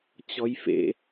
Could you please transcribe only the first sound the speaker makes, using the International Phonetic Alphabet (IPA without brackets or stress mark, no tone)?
t͡ɕ